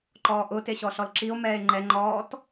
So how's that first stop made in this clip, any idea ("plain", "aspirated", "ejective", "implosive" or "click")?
click